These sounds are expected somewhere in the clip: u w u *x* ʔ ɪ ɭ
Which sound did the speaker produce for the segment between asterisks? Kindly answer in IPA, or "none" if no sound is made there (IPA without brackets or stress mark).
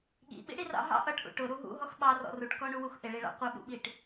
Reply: x